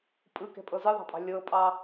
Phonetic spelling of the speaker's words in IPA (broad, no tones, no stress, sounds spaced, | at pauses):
pʼ ɯ k ɛ̤ pʼ ɤ z ɯ ðˤ ɑ̤ pʼ ɑ̤ lʲ ɤ pʼ ɑ